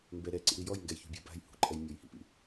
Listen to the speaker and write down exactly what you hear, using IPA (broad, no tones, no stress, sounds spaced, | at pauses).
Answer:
m b ɛ ɾ ɛ ǀ ḭ ɾ i j ɔ j ŋ ɡ ɛ j ç ṳ bʲ a̤ b a̤ j h ṳ ǃʼ ɛ j mʲ ɔ j h ḭ p ḭ